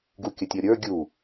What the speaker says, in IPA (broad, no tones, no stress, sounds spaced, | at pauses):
ɡ u kʲ ə tʲ ɔ ɾʲ ə˞ ɡʲ u